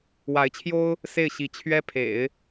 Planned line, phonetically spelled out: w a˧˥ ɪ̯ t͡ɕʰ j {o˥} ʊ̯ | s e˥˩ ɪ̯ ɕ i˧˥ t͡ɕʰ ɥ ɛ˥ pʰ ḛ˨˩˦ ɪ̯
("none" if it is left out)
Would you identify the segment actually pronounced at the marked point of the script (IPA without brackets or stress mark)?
o˥